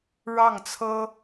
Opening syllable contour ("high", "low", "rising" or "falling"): falling